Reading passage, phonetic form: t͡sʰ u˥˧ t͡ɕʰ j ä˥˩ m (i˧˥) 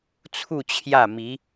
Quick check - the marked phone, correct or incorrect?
correct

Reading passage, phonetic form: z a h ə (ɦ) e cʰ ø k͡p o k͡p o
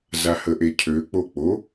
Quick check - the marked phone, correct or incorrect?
incorrect: ʔ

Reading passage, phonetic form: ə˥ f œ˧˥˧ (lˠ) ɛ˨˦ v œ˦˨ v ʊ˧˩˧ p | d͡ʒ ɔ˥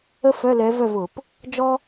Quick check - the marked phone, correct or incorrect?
incorrect: l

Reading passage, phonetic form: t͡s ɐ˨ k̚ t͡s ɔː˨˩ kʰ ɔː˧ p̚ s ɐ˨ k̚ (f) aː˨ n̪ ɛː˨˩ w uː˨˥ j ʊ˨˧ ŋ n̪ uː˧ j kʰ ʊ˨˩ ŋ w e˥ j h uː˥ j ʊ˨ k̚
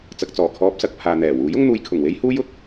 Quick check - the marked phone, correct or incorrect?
incorrect: pʰ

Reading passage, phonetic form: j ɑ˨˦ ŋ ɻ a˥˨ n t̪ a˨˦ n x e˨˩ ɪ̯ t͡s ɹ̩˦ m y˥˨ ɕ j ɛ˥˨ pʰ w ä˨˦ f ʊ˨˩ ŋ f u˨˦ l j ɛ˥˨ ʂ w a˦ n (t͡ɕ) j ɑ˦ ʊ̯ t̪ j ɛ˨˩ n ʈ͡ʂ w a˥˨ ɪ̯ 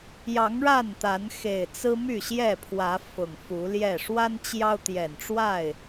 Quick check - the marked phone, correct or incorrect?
correct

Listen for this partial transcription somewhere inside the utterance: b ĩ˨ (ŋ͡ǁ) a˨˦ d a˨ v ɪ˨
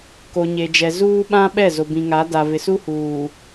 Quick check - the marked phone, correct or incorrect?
incorrect: ŋ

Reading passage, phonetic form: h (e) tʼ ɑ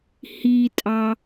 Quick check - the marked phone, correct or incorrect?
incorrect: i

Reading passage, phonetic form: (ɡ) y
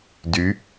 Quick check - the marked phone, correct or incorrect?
incorrect: d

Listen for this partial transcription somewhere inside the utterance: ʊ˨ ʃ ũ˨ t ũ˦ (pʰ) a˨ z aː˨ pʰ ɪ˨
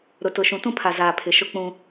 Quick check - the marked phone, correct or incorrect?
correct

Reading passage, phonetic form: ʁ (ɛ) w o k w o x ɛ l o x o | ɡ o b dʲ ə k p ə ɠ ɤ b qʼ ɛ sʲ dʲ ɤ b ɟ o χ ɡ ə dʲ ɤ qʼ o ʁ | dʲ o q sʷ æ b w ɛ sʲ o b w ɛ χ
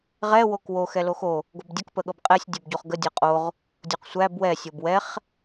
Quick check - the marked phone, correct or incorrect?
correct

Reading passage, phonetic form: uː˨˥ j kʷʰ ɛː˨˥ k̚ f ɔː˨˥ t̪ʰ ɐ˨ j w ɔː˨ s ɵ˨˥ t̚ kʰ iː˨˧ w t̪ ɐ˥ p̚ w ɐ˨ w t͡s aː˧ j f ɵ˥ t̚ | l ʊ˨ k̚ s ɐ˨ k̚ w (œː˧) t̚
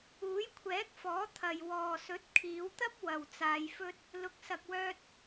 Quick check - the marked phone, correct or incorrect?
correct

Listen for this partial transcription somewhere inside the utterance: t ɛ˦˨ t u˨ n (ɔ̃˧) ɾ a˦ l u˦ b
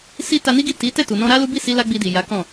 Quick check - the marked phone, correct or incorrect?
correct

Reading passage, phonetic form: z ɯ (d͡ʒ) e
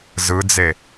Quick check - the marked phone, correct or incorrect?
incorrect: d͡z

